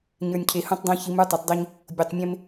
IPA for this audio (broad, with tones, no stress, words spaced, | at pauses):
ɲə˞˨nʲcʰe˨hũ˦tˤdˤõ˦ çi˨˦mə˞˦tˤo˨tˤdˤi˦ɲ | bʲo˨tˤmʲẽ˦m